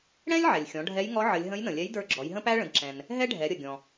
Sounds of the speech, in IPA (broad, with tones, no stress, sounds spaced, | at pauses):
ɽ ɛ̃˥ lʲ ʕ ɛ˩ lʲ xʲ ɔ̃˩˧ ɖʱ ɛ˧˥ j ŋ ɔ˧˥ ʕ ə˩˧ lʲ ɦ ə̃˧˥ j n ə̃˩ lʲ ɛ˧˥ j d ə˞˧ ɡ͡ǁ ɔ˩˧ j ɦ ə̃˥ p æ˥ ɭ ə̃˩˧ d ǁ ɛ̃˩ n | ɦ ɛ˥ ɖʱ ɛ˩˧ ɾʲ ə˩ ɡʲ ɔ̃˩